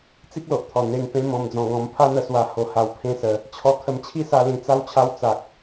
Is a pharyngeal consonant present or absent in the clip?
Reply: absent